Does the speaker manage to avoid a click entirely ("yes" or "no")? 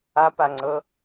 no